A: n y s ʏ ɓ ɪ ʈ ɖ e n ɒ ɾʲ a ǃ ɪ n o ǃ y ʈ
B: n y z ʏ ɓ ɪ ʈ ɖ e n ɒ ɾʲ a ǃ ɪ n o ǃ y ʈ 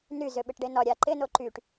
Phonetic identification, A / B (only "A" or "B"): B